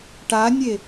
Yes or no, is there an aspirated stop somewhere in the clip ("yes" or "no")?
no